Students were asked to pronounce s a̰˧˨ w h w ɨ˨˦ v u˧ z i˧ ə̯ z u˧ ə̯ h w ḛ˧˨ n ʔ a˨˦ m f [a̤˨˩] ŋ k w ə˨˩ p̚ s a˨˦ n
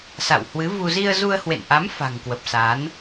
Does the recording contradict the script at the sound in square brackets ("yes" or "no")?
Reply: no